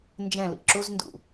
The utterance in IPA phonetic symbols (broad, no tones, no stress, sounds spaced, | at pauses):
n d͡ʒ ɛ̃ l ḭ ǁ u z n d ṵ